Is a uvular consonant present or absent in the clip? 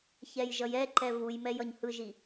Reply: absent